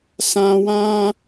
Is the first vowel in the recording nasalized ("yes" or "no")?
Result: yes